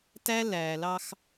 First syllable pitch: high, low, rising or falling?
high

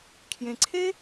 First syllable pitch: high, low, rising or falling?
low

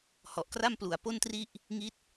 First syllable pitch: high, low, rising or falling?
low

